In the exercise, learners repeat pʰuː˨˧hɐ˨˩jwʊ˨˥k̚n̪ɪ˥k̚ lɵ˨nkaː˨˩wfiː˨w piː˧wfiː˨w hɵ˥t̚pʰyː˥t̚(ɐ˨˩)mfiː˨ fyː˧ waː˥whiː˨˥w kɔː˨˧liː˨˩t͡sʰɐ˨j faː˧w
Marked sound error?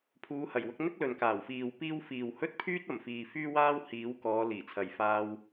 no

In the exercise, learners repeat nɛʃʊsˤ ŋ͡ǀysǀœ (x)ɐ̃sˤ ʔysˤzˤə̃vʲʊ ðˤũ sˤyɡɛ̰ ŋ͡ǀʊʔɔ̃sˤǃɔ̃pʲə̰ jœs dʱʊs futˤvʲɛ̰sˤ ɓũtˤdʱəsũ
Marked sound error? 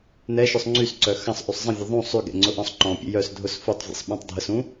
no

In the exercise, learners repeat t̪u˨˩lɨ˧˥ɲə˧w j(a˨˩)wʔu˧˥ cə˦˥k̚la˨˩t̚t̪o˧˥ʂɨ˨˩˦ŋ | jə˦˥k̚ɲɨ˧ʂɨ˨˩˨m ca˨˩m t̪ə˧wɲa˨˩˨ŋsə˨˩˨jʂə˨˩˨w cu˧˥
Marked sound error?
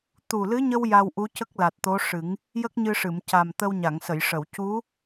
yes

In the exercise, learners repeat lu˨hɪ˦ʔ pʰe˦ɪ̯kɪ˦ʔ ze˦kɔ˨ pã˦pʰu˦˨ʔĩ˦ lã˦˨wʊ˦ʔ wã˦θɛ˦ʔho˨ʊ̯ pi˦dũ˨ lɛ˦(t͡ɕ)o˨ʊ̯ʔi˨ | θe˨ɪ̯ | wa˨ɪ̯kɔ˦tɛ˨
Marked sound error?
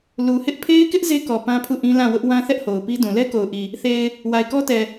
yes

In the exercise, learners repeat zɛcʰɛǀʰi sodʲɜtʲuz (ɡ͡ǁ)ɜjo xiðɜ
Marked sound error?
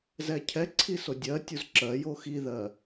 yes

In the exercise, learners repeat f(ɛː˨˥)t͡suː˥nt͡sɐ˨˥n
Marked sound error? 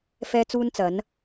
yes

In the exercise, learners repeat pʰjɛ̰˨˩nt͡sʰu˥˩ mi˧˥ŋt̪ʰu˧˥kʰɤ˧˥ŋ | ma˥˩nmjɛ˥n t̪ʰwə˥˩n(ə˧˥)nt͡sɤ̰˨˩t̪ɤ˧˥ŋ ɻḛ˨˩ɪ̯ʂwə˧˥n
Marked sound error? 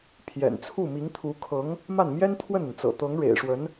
yes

